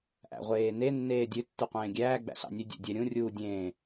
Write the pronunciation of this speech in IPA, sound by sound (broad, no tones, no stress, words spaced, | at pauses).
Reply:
ʔæ̰ʁʷeːne nːeːdʲø tːʉqʷẽːɡʲæː ɡ͡bæ̰ɬɑ̰nʲø dʲɛ̰dʲɛɾʲũ rʲuːdʲẽː